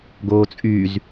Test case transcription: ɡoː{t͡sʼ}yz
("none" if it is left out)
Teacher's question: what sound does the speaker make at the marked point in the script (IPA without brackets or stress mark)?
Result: t͡sʼ